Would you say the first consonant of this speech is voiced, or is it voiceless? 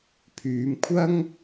voiceless